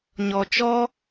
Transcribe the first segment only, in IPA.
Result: ɲ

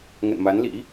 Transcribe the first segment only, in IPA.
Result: ŋ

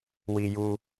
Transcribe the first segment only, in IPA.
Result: w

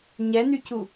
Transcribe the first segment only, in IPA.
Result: ɲ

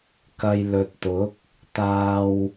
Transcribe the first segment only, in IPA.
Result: k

